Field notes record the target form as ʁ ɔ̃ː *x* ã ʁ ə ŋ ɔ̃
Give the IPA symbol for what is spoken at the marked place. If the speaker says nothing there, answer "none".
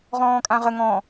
kʼ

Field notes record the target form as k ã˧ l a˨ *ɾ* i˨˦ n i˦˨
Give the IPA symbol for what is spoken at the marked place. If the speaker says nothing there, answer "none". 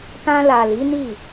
l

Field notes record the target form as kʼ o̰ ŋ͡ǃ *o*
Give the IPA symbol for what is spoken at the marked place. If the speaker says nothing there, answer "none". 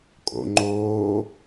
oː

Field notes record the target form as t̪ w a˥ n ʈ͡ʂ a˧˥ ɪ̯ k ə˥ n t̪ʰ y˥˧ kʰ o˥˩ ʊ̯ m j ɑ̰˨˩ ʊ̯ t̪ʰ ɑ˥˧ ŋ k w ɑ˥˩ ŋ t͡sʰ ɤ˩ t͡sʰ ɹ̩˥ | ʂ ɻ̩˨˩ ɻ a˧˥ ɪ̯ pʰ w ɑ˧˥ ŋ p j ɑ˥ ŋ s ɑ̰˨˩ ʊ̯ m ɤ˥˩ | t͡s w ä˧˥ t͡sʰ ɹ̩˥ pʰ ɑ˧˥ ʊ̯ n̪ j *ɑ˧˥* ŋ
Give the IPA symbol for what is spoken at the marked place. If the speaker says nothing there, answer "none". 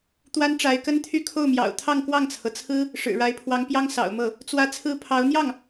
ɑ˥˩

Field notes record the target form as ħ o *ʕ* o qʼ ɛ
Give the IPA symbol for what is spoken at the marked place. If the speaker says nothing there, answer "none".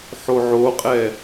ʕ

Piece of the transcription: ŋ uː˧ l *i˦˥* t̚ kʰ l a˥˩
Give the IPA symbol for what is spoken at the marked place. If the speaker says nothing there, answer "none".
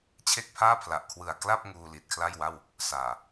i˨˩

